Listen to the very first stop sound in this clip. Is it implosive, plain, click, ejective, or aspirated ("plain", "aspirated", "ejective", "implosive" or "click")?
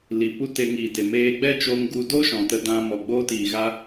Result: plain